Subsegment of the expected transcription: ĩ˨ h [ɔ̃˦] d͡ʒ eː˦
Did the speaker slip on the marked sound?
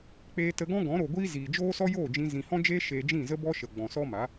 no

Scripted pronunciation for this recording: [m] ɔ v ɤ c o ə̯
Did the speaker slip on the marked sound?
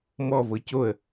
no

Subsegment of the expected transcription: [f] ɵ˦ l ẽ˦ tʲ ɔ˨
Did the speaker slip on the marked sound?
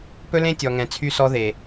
yes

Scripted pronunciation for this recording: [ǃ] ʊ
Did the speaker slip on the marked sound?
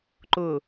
no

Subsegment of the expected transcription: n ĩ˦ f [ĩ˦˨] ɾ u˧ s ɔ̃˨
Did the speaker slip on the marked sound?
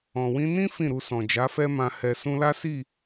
no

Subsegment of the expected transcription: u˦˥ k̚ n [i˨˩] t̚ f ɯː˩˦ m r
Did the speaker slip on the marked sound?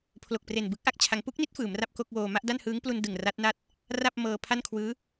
yes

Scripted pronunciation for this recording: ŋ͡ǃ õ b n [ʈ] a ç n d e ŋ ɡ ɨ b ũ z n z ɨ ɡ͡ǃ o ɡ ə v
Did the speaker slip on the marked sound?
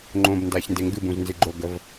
yes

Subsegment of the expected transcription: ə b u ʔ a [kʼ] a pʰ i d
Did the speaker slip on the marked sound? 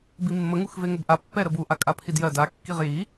no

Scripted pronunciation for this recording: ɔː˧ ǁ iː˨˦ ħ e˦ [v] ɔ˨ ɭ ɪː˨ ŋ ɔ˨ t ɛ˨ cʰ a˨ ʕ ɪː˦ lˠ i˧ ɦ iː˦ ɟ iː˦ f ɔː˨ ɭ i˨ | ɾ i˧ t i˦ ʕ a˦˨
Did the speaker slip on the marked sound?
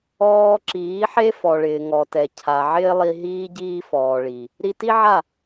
yes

